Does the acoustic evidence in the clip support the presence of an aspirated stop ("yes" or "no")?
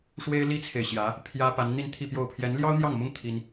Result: yes